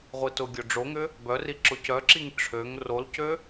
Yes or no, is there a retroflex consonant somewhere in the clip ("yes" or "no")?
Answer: yes